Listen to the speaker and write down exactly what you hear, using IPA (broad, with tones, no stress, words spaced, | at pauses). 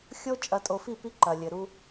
xʲo˦ t͡ʃʼɐ˨tʼo˨fi˦˨ pi˦ǃɐ˨lʲɘ˨ɾu˦